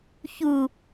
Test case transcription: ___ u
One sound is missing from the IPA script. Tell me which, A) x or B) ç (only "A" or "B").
B